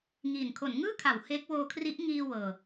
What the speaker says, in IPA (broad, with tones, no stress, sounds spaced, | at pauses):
ŋ iː˨˩ n kʰ o˩˦ n ŋ ɯː˥˩ kʰ a˩˦ w h e˦˥ k̚ w oː˧ kʰ r i˦˥ ʔ ŋ iː˧ w ɤː˨˩